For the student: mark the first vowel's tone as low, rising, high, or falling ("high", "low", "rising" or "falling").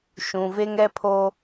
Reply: low